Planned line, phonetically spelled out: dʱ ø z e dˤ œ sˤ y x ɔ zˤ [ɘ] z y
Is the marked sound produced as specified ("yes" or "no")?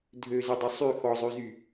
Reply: no